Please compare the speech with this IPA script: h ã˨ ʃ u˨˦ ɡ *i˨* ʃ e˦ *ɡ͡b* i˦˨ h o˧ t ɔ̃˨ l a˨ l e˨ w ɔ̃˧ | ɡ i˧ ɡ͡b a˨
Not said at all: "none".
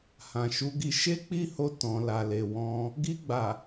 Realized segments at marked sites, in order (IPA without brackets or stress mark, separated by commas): i˧, k͡p